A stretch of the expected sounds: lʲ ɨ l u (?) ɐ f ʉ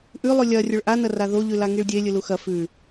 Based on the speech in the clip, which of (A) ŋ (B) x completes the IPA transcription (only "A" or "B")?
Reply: B